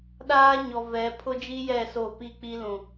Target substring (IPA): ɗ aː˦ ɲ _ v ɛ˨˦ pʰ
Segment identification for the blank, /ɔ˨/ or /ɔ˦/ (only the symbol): ɔ˨